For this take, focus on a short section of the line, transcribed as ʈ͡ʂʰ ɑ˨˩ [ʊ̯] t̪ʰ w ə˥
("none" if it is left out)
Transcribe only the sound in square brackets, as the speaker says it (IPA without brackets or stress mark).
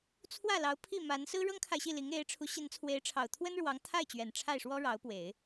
ʊ̯